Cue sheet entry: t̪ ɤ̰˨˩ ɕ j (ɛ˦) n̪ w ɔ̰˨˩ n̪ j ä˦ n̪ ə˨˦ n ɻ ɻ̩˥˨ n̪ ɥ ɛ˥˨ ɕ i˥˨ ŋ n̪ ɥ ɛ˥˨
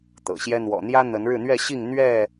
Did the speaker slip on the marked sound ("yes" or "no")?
no